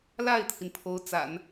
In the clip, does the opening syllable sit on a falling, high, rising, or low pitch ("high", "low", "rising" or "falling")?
falling